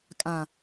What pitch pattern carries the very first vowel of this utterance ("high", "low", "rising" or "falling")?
low